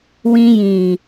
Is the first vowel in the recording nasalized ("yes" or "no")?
yes